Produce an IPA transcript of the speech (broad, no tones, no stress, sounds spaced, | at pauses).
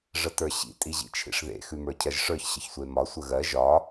ʐ ə t ə˞ ɕ ḭ tʼ i ʑ ḭ t͡ʃʰ ḭ ʂ ð ḛ x ʉ m ə˞ cʰ ɜ ʒ ʂ ə˞ ç ɕ ə ç sʷ e m ɒ sʷ ə ɣ ɜ ʒ ɒ